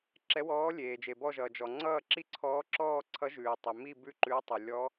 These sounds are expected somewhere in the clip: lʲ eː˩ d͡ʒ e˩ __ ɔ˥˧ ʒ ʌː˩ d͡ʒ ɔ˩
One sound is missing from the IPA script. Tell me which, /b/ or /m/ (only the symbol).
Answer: b